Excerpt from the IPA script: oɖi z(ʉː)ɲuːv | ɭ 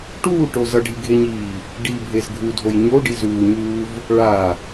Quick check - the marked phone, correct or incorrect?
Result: incorrect